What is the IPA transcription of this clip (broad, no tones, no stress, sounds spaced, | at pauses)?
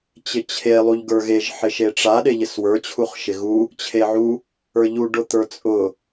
t͡ɕ ɪ t͡ɕʰ e lˠ u ʎ ɡ ə˞ ɣ e ʒ ħ ɪ ʃ e ʈ͡ʂ a ɗ e ʎ ɪ s w ə˞ t͡ɕʰ u χ ʃ ɪ ɣ u | t͡ɕʰ e ʕ u | ə˞ ʎ u ɖ ʊ t̪ ə˞ t͡sʼ ʊ